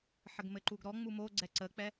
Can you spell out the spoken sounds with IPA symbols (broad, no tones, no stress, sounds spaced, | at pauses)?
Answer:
ħ ə ɡ m ɘ ǃ u ɡ ɾ ɔ ŋ͡m u m o ɡ͡ǀ ɛ ǀ ə k͡p ɛ